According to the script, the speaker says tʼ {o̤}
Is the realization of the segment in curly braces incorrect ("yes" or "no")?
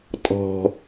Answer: yes